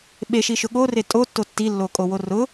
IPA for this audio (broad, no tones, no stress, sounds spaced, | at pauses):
ɓ e ʃ i ʃ ʊ ɠ o r e tʼ o tː o tː i lː o kʼ o w o r ʊ